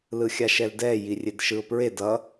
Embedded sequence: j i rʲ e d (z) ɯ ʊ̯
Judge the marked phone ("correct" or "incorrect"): incorrect